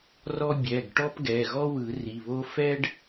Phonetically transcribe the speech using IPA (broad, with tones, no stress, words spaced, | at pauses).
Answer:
rɔ˥ bʲɛ˩˧˩ɡ ʈɔ˥pɡɛ˩˧˩ɣɔ˥ wɯ˨˩˦ri˩˧˩βo˥ fɛ˥ɖ